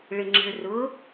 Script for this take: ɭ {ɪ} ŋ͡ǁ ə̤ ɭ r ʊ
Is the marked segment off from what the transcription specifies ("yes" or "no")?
no